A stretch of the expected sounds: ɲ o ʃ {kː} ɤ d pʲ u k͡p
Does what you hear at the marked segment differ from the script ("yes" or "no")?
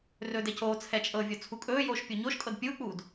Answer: yes